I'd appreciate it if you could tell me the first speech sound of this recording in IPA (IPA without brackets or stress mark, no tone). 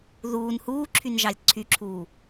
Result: ð